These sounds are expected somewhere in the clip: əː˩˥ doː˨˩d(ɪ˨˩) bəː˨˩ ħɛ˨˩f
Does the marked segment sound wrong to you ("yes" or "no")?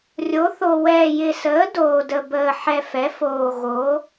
yes